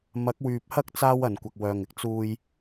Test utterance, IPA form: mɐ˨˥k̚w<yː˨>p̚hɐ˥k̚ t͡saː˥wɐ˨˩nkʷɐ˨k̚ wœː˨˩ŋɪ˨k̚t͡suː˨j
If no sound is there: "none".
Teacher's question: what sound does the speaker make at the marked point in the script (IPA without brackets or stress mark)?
yː˨